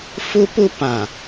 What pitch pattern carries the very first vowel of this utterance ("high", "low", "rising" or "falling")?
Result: high